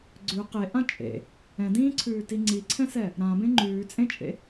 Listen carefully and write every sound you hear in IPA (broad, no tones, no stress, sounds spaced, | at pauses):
ɡ͡ǀ ʉ q e ʔ ã t͡ʃʼ ḛ | ɛ̃ d ĩː ǀʰ ʉː t i ŋ͡ǀ i ǀʰ ɛ̃ s ɛ | ɾ ã b ẽ ŋ͡ǃ ʉː t͡sʼ ẽ t͡ʃʼ ḛ